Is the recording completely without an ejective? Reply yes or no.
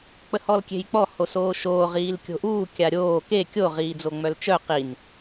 yes